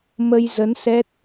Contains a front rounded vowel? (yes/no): no